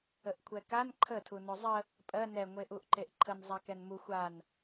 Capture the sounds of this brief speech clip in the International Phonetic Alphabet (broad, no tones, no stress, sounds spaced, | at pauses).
ə ʔ kʷʰ ɛ k a n ǃʰ ə tʰ u n o zˤ ə | pʼ ɜ n ɛ ŋʷ e ʔ u ʔ ǃ e ʔ ǃʰ ə n zˤ a k ɛ n m u xʷ a n